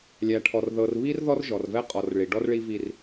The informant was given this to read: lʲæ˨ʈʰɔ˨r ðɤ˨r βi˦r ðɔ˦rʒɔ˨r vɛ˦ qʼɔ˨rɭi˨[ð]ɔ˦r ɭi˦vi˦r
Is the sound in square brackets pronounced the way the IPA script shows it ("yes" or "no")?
no